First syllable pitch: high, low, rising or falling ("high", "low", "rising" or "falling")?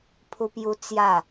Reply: high